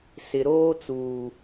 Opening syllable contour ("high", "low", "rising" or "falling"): low